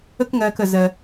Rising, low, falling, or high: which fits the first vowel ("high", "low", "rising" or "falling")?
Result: high